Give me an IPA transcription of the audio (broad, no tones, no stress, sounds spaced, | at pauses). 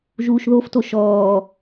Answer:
ʒ uː ʃ ð o f t o ʃ ɔː